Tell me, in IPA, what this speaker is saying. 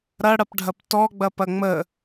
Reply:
ɾ ɐ ɽ ɐ p ɖʱ ɐ p t ɔ ɡ͡b ɐ p ɐ ŋ͡m ə

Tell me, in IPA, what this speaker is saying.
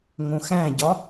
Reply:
ŋ õ x æ̃ ɟ ɒ

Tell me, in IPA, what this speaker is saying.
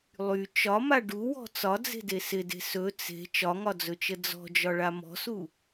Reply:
lˠ y t͡ʃ ɒ m a ɖ u w ɔ̤ t͡s ɒ d͡z e̤ d e s ɪ d e̤ s ɵ t͡s e̤ t͡ʃ ɒ ŋ ɒ d͡z ɵ t͡ʃ ə d͡z ɔ̤ d͡ʒ ɒ ɭ a m ɔ̤ s u

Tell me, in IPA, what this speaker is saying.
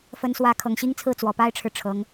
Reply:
f ə˧˥ n s w ä˧˥ kʰ ɤ˨˩ ŋ ɕ i˥ ŋ t͡sʰ ɹ̩˥˩ t͡s w ɔ˨˩ p a˥ ɪ̯ ʈ͡ʂʰ ɻ̩˨ ʈ͡ʂʰ ɤ˧˥ ŋ

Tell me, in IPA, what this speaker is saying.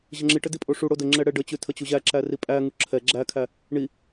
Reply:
ʑ ə ŋ͡ǁ i ʈ ə d i pʼ o ʂ u ɽ o d ə ŋ͡ǁ ɛ ɽ ɛ ɖ ə t͡ɕ ʉ tʰ ə t͡ɕ u ʑ æ ǁ æ r i pʼ æ ŋ u ǁʰ ɛ ɡ͡ǁ æ kʰ æ | ɳ i

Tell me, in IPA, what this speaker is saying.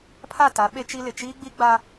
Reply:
pʰ a˦˨ t a˨˦ ɓ e˦ t͡ʃ i˦ l ɪ˨ t͡ʃ iː˦ ɡ͡b i˦ ɡ͡b a˦

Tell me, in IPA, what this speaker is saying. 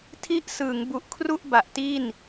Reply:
tʰ i˦˥ ʔ s ɯː˩˦ ŋ b u˨˩ ʔ kʰ r u˥˩ ʔ b a˨˩ ʔ t i˥˩ n

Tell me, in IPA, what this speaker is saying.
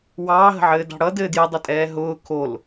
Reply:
w ɑː ɦ ə̤ ʕ ɘː d ɑ̤ ɽ ʌ d ɘː d j ə dˤ ɘ tʼ ɛː ɦ ʊː kʰ o l

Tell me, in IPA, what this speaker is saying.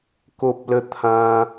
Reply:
k o˦ p̚ l ə˦ t̪ʰ ã˧

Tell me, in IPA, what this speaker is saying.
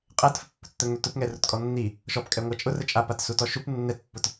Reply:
qʼ ɛ t f ə pː ʊ t t̪ ə ŋ ø t ʊ p ŋ ɛ r ʊ t kʼ ɔ nː i | ʃ ɔ p kʼ ɛ ŋʷ a t͡ʃʼ ʊ r ə t͡ʃʼ a p a t s u t ɔ ʃ u p nː ɛ t pː ʊ t

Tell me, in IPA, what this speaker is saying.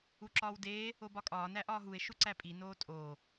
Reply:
u ǁ ɒː w d eː | o b ɒ kʼ ɒː n æ ʔ ɒː ɦ u e̯ ʃ u ǀ æ pʼ i n oː tʼ oː

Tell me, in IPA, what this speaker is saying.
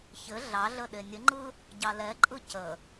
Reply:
ç ɘ ɮ ɑ ɮ ə ɗ e nʲ ə ŋ͡ǃ ɯ | ɟ ɑ l ɛ ǃʼ ɯ c ə

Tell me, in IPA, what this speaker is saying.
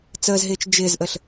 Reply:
t͡s əː z ɦ ɪː t͡ʃ d͡ʒ ɪː z ʔ ə ɬ

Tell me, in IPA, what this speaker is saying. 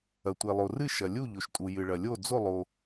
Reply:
ɐ˩ tʷ e˩ lˠ o˩ r ɨ˥˨ ʃ ɐ˩ lʲ u˥˨ ʎ o˩ ʃ tʼ u˩ j ɨ˩ ɭ ɐ˩ lʲ o˥˨ d͡z o˥˨ lˠ o˩

